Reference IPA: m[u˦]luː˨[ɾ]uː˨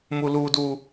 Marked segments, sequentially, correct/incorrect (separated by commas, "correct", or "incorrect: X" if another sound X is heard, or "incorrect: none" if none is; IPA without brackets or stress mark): incorrect: u˨, incorrect: d